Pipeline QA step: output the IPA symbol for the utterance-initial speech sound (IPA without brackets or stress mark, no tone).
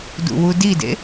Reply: d